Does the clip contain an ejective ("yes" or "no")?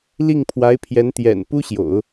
no